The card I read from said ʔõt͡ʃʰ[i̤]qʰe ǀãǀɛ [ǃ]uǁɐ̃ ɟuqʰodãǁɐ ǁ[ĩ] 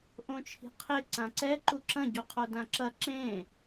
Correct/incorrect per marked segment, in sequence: correct, correct, incorrect: ẽ

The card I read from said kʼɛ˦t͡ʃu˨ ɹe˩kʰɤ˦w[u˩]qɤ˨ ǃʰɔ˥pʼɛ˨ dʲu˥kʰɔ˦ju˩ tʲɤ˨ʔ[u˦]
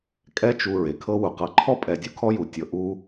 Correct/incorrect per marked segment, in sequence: correct, correct

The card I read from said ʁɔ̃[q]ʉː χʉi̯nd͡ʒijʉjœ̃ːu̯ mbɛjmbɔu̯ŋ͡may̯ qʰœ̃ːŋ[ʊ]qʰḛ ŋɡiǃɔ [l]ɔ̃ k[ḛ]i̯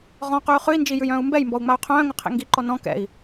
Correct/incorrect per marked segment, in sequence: correct, correct, incorrect: n, incorrect: ɛ̰

